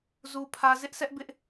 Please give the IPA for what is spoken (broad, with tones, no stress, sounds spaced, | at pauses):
z u˦ pʰ ä˦ z ɪ˦ ʔ s ɛ˦ ʔ b ɪ˦ ʔ